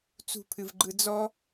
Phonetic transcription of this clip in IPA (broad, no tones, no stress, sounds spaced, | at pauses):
t͡s ṳ pʰ ɨ v ɡ͡ǃ ɯ d͡z ɔ